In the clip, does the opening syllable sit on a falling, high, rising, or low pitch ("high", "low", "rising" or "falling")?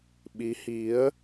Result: rising